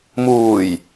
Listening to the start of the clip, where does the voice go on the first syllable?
low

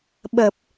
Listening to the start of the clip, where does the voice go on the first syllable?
low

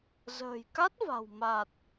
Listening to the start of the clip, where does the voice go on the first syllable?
low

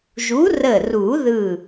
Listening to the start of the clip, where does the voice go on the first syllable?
rising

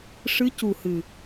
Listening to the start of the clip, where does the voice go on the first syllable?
rising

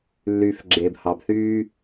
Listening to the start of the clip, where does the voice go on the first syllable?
low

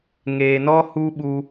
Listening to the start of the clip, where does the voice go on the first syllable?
low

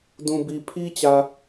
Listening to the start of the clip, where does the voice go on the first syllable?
low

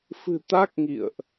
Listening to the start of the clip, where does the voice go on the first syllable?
low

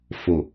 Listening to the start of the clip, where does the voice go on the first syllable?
low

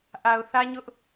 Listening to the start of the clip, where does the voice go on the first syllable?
low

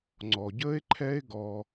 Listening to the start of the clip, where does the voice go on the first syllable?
low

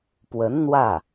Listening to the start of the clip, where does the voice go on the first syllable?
rising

